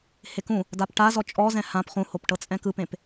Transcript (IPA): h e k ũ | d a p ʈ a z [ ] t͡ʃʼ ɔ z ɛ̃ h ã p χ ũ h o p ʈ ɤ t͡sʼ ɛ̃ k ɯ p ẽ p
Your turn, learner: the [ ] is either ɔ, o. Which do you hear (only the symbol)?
ɔ